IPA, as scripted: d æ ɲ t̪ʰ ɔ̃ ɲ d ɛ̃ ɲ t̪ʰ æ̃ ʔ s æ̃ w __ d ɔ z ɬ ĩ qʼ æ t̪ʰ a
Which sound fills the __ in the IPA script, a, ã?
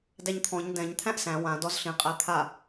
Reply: ã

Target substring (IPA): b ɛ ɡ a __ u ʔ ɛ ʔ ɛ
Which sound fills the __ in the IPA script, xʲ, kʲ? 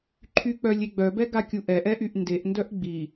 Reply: kʲ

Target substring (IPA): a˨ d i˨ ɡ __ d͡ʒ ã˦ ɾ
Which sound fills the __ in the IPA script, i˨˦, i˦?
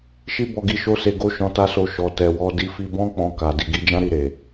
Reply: i˨˦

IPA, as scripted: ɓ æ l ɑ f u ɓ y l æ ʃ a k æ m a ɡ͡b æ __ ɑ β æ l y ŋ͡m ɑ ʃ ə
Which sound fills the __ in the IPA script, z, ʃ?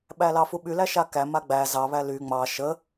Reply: z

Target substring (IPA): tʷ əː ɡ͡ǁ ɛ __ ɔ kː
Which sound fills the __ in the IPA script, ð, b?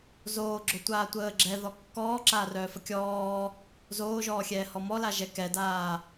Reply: ð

